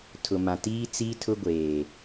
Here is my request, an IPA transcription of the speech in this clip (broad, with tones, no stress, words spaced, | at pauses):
tʰʊ˨mã˨ tiː˦t͡siː˦ tʰʊ˦ɡʷeː˨